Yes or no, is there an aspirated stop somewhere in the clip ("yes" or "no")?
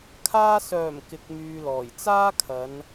yes